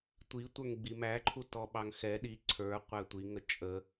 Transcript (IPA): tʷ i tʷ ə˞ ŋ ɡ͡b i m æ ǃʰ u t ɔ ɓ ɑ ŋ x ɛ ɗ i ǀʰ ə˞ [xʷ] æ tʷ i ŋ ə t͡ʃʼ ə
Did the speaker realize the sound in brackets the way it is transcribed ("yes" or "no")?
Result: no